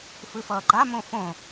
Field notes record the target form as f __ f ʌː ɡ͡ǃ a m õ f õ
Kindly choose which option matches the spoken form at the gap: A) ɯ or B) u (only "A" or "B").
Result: A